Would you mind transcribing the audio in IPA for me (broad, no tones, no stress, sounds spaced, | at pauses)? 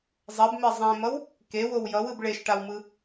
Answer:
zˤ ɛ b m e zˤ ẽ m ʌ w | k e w o w j ʌ w ɯ b ɭ e ʃ ʈ a w m ɯ